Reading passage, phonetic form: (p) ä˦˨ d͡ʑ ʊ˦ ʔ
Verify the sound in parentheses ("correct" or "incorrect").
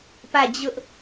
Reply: correct